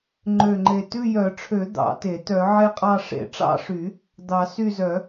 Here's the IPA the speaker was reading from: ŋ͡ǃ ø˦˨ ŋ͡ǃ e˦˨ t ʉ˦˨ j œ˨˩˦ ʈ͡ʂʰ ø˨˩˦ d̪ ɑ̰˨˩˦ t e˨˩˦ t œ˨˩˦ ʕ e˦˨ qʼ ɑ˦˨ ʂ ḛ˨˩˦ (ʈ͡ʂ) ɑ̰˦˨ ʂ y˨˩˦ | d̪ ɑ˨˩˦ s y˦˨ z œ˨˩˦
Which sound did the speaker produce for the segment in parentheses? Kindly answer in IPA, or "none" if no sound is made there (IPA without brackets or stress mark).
ʈ͡ʂ